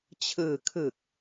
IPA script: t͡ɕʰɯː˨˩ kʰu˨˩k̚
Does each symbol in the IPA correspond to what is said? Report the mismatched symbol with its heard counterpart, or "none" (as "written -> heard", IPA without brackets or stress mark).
u˨˩ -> ɯ˨˩